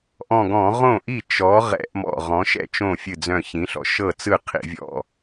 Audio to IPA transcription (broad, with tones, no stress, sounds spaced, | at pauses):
ʔ ɔ̃˧˩ ɡ ɔ̃˧˩˧ ʁ õ˥˩ ʔ i˥˩ t͡ʃ ɔ˩˥ ʁ ɛ̰˧˩˧ ʔ m ɔ̰˧˩ ʁ ɔ̃˩˥ ʃ ɛ̰˥˩ t͡ʃ õ˥˩ fʲ ɨ˧˩ d͡z œ̃˧˩ ç ĩ˩˥ ɬ ɔ̰˩˥ ʃ ɤ˥˩ t͡s ɯ˥˩ qʰ ḭ˧˩˧ vʲ ɔ̰˥˩